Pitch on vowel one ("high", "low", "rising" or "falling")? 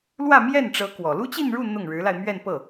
falling